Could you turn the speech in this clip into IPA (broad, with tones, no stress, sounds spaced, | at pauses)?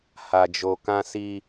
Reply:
h a˧ d͡ʒ o˧ k ã˦ s i˦